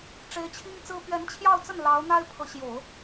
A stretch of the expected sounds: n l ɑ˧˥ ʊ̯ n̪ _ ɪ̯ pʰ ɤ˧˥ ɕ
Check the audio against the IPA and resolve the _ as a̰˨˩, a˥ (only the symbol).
a˥